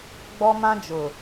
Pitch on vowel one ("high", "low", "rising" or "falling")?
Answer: high